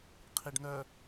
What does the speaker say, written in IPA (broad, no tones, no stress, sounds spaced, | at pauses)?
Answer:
qʰ i ɖ n œ